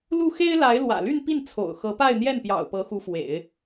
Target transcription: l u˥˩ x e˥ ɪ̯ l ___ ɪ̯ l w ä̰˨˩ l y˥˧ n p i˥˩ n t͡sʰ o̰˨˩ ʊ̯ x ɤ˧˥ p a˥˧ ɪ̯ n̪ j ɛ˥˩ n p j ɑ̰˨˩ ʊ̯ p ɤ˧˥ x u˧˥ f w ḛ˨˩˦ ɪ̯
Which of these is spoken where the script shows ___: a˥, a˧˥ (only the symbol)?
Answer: a˧˥